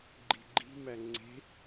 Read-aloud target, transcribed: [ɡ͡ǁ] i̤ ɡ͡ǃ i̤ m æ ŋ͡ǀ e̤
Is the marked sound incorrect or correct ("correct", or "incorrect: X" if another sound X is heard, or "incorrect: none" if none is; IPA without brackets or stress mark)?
incorrect: ɡ͡ǃ